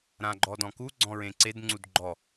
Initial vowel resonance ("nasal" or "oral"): nasal